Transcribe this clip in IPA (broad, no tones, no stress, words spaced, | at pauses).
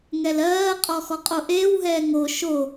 ŋɛlɜːqʼɔ xɔqʼoʔeːwɦɛː ŋo ʃo